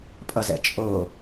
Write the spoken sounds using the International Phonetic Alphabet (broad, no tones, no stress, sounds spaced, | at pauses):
pʼ ʌ z ɛ̰ t͡ʃʼ o